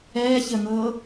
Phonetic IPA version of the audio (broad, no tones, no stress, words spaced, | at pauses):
ɛːçəŋɤː